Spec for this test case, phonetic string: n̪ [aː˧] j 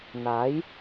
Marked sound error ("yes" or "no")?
yes